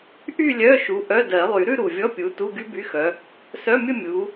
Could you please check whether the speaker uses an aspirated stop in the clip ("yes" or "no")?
no